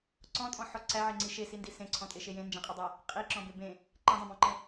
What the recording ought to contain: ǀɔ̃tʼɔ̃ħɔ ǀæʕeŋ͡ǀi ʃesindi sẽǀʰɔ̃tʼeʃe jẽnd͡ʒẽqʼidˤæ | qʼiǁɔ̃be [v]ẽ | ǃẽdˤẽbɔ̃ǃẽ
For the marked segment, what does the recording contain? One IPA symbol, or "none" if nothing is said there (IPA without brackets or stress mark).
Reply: b